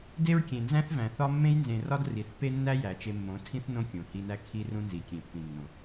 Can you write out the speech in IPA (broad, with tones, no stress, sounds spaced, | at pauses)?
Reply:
d e˦ ɹ kʲ ẽ˨ n z æ̃˦ θ v æ̃˨ θ ɒ˦ mː ẽ˦ j n z ẽ˨ r ɒ˦ d r i˨ θ p e˦ nː æ˦ j æ˨ t͡ʃ e˧ mː õ˨˦ tʰ ĩ˦ θ n õ˦ kʲ õ˨ h i˧ n æ˦ kʰ i˦ r ũ˦ n z i˨ kʲ ẽ˨ pː ĩ˨ nː õ˨